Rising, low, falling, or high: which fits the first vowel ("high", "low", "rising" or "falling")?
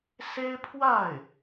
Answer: high